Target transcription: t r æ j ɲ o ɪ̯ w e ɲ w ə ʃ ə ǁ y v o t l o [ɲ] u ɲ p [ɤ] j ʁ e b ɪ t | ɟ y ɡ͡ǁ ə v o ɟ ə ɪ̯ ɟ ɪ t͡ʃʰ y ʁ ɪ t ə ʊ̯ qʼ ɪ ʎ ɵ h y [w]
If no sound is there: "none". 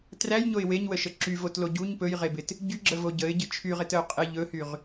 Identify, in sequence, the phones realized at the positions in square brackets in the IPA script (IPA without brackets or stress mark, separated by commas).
ɟ, ɵ, ʁ